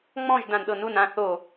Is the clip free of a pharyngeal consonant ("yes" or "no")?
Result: yes